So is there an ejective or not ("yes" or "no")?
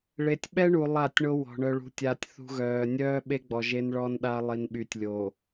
no